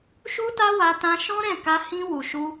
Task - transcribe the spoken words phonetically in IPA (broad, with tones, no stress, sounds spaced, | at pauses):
ʃ u˦ t a˦ w a˧ t ã˧ ʃ ɔ̃˦ ɾ ɛ̃˦˨ k a˧ h ĩ˧ w u˨ ʃ u˧